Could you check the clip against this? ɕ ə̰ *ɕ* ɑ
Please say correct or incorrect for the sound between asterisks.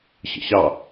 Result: correct